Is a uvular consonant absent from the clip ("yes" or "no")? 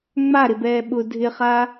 no